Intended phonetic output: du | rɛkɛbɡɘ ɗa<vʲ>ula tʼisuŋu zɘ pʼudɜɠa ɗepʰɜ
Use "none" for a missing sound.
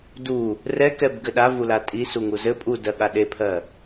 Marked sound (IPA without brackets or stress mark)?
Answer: v